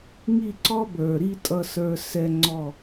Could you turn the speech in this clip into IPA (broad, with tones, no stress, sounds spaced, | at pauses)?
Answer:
ŋ i˦˨ ǀ ɔ˦ b ə˞˨ ɾ i˦ tʼ ʌ˦ s ə˞˦ s ɛ˦ ŋ͡ǀ ɔ˦˨